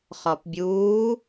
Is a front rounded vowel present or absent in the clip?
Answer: absent